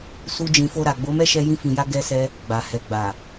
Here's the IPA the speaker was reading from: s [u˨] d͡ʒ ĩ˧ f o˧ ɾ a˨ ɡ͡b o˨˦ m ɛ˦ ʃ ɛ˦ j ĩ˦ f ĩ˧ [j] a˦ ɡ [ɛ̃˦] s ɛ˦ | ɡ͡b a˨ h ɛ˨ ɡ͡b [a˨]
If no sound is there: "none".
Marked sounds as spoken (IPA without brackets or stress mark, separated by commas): u˦, j, ɛ˦, a˨